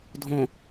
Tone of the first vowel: low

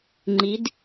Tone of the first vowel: rising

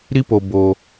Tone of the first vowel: high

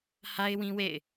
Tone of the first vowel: high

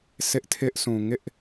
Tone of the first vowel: high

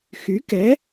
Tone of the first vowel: rising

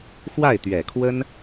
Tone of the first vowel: falling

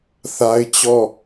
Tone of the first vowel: high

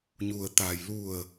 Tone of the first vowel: low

